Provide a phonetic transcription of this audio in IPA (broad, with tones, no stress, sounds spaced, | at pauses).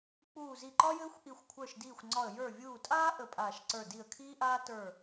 k͡p uː˧˩ z i˧˩ ǃ ɒ˥ j ɘː˥ xʷ ʔ i˧˩ xʷ kʷʰ ə˞˧˩ ʃ d iː˧˩ xʷ ŋ͡ǀ ɒ˧˩ ə̯ j ə˞˧˩ vʲ uː˧˩ tʼ aː˥ ʔ ə˧˩ pʼ aː˧˩ ʃ ǀ ə˞˧˩ d i˧˩ ə̯ kʰ iː˥ ʔ aː˥ t ə˞˧˩